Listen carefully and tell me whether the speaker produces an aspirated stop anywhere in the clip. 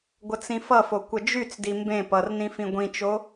no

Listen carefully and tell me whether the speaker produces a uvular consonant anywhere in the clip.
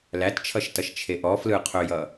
yes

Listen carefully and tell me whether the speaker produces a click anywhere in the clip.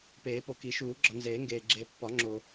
yes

